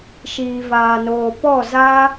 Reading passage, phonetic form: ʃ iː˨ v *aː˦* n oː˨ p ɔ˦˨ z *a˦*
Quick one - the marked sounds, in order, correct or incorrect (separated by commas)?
incorrect, correct